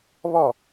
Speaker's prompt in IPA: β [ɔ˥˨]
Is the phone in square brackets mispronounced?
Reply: no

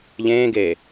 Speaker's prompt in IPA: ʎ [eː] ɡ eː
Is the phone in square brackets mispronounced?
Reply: yes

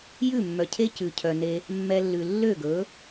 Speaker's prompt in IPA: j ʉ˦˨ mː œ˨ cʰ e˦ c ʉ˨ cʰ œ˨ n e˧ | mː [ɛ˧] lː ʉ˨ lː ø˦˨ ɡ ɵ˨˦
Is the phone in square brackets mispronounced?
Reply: no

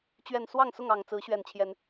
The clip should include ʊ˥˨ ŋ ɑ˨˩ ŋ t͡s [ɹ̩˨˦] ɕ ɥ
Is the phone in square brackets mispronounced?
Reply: no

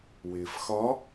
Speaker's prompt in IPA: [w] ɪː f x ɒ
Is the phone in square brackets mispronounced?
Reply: no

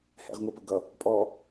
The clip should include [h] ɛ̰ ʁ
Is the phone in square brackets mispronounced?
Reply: no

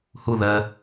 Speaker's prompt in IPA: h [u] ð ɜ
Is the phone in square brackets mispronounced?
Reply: no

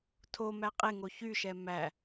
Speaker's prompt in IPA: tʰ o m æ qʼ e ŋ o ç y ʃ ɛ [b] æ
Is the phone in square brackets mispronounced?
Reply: yes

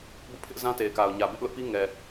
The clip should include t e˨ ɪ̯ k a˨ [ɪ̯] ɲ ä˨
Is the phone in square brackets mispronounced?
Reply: yes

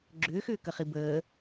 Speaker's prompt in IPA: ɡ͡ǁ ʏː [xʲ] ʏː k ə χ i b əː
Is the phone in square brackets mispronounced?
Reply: yes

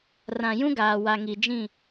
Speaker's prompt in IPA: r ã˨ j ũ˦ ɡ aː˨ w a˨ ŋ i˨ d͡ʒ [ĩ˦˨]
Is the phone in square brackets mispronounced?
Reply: no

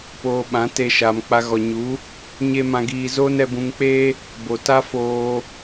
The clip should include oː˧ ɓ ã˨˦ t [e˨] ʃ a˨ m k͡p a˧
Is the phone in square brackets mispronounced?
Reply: yes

